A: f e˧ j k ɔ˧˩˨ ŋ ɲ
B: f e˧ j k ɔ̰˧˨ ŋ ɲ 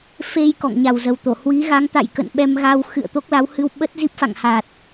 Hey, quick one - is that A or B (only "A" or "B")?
B